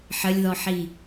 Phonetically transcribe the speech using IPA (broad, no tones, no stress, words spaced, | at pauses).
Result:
ħəlʲðɔħi